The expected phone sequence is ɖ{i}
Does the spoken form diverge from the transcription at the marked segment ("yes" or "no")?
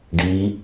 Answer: no